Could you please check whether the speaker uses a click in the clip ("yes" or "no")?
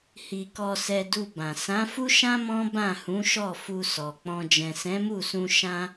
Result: no